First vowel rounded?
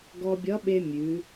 yes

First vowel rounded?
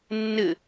no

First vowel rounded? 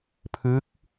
no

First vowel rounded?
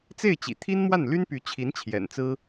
no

